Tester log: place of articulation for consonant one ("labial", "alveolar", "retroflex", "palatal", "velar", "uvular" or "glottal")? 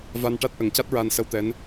labial